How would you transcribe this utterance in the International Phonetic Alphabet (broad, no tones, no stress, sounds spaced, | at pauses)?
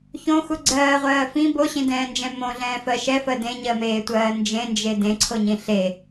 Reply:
ç õ x u ɡ͡ǀ ɜː ʁʷ ɜː f ĩ b o ɕ ĩ d ɛ̃ː n d͡ʒ ɛ̃ m õ ɮ ɛ̃ː f ɜ ʃ ɛ f ɜ d ẽ ɲ ɜ m eː tʷ ɜː n d͡ʒ ẽ n d͡ʒ e d ẽ ǀʰ o ɲ ĩ ɬ e